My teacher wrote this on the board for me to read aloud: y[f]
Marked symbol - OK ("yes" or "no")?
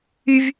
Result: no